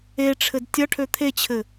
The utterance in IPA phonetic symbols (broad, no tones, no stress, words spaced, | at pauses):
eʈ͡ʂʰɘd tʲʌ ʈʰøt̪ʰet͡ɕʰɘ